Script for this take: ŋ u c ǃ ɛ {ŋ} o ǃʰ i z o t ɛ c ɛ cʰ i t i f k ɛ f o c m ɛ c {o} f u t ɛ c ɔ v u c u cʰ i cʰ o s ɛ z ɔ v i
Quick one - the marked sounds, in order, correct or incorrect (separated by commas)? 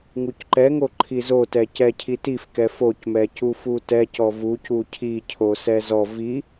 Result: correct, incorrect